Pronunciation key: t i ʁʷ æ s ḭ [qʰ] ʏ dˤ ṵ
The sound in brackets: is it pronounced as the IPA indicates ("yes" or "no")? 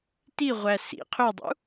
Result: yes